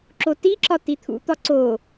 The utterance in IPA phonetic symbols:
ǁ o t i ǁ ɒ t i t̪ʰ ṵ t̪ ɒ ǀ o

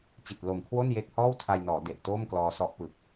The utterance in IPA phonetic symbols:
t͡ɕ i˨˩ t̚ l o˨˩ m kʰ w o˥˩ n j e˦˥ k̚ h ɔː˥˩ w tʰ a˧ j n ɔː˩˦ d e˨˩ ʔ t oː˥˩ m k l ɔː˧ s ɔ˦˥ ʔ p ɯ˨˩ k̚

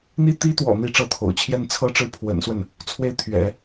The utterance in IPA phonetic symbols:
n̪ i˥ t̪ i˥ t̪ w ɔ̰˨˩ n̪ i˥˧ ʈ͡ʂ ɤ˥˩ t̪ʰ o̰˨˩ ʊ̯ t͡ɕʰ j ɛ˥˧ n t͡sʰ ɤ˥˧ ʈ͡ʂ ɻ̩˥˩ pʰ w ə̰˨˩ n s w ə˥˩ n | t͡sʰ w e˥ ɪ̯ t̪ʰ ɥ ɛ̰˨˩˦

